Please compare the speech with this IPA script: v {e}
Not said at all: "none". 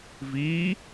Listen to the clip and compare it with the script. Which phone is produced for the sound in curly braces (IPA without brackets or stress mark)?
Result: i